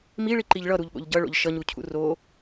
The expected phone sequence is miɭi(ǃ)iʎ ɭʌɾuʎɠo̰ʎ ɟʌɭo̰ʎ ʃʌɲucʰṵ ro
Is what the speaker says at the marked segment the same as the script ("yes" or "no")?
yes